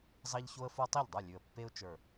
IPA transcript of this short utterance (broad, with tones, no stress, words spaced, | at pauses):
zˤɑ˦ʎço˦ə̯fo˦ tˤɛ˥˩ʎdˤʉ˥˩lʲʉ˨˩ə̯ pːe˦ʊ̯t͡ʃə˞˨˩